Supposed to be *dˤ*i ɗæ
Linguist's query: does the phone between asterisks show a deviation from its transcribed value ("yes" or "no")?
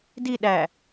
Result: yes